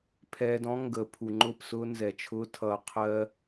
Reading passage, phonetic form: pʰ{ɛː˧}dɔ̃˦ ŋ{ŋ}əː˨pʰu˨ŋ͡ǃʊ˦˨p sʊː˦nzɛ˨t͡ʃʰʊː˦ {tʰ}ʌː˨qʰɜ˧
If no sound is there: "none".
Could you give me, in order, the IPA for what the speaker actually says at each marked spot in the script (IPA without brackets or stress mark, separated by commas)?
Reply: ɛː˧, ɡ, tʰ